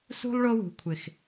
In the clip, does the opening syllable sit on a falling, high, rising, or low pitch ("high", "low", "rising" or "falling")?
high